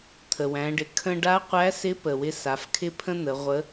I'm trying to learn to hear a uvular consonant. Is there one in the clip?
yes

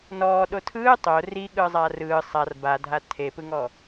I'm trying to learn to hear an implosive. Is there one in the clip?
yes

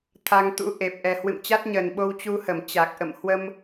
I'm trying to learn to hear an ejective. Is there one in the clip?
no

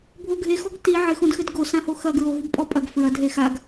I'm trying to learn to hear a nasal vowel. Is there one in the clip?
yes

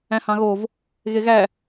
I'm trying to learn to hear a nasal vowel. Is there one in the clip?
yes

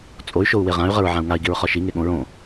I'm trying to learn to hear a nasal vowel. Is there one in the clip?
yes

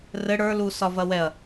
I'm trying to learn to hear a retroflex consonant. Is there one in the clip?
yes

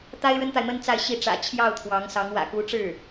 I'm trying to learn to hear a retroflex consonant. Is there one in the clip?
yes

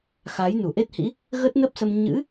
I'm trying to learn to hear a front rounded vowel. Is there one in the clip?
no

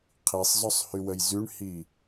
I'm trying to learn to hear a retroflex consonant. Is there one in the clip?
yes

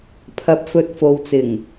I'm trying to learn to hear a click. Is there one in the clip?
no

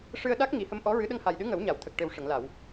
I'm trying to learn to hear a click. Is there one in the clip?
no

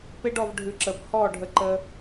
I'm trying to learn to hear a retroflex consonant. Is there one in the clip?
yes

